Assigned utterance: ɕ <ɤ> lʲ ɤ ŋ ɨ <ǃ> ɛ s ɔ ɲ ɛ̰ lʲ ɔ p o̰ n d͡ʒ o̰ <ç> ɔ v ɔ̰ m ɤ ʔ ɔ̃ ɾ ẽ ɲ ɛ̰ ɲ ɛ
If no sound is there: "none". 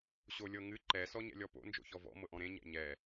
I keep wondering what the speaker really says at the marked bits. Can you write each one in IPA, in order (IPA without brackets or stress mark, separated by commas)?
o, ǃ, ç